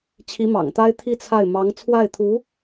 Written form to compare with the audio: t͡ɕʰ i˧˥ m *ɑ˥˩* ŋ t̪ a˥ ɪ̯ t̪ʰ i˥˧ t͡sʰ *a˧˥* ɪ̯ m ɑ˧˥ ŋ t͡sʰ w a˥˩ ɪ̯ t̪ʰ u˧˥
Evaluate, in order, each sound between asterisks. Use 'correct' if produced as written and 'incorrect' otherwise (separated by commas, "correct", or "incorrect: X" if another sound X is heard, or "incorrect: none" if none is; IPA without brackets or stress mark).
incorrect: ɑ̰˨˩, incorrect: a˥˩